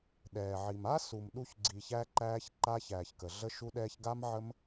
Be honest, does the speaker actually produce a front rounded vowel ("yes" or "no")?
no